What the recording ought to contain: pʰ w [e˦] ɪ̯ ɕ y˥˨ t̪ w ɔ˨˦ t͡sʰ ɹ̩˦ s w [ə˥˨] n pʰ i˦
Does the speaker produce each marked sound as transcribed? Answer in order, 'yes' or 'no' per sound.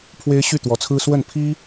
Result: yes, yes

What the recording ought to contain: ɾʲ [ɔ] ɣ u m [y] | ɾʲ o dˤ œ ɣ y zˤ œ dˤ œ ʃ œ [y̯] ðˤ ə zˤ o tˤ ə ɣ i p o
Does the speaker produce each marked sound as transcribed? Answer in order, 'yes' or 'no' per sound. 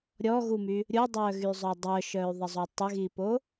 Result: yes, yes, yes

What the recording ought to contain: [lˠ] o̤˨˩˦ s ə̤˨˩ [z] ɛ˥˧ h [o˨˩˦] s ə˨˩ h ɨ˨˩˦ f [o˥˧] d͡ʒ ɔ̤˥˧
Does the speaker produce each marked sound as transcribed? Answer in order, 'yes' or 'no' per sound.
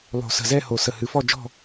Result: yes, yes, yes, no

